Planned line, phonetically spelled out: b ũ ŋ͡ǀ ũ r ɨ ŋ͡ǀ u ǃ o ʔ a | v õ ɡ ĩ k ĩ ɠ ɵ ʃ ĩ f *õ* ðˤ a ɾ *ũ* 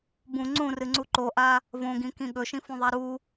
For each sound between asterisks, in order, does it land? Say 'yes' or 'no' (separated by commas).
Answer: no, no